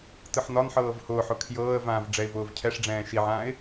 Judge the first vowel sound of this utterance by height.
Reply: high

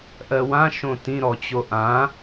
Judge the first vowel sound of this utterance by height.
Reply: mid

